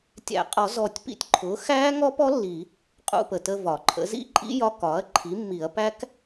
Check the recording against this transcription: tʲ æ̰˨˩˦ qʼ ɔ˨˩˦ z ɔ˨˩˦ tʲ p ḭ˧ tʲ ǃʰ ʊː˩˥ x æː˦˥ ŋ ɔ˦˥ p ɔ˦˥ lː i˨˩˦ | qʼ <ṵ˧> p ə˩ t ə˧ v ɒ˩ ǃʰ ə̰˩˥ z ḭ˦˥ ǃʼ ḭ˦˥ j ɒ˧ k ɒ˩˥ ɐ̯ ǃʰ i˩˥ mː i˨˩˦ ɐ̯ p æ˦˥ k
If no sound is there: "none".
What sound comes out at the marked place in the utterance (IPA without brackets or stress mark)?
ṵ˧